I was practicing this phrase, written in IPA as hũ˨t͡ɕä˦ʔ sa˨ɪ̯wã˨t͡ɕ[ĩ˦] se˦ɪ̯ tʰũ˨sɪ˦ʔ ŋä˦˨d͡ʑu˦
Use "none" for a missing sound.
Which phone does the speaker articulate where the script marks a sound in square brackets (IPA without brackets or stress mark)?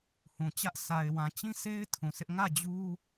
ĩ˦